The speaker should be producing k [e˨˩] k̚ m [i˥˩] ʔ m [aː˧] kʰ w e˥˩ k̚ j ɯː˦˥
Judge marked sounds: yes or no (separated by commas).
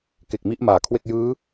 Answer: yes, no, no